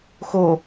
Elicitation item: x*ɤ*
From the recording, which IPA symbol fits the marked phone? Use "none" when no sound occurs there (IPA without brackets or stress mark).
o